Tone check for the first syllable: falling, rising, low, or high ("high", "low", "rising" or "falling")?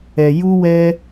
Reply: low